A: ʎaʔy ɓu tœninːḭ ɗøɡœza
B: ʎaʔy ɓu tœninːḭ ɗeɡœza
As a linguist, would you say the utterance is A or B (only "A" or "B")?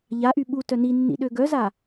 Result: A